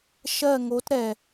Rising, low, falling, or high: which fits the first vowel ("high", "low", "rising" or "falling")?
falling